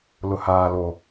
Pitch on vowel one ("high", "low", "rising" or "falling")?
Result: low